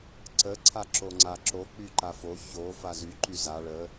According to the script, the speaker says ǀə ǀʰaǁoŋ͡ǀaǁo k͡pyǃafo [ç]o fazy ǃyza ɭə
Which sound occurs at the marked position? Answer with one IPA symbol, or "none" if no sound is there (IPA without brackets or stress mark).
ç